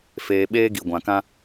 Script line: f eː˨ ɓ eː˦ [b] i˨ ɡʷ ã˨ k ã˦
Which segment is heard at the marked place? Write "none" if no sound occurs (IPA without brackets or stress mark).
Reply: ɡ